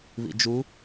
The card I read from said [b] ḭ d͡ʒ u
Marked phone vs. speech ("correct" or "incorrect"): incorrect